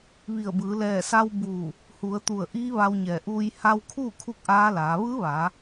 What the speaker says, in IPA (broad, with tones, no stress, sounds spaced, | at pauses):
ʋ i˧˩ ə̯ b ɯː˩˧ l ɛː˧˩ s a˧ w b uː˧˩ | h u˩˧ ə̯ t̪ u˧˩ ə̯ ʔ i˧˥ ʋ a˧ w ɲ ɛː˧˩ ʔ uː˧ j h a˧ w kʰ uː˥˨ kʰ u˥˨ k̚ ʔ aː˧˥ l aː˩˧ ʋ ɯː˧˥ ʋ aː˩˧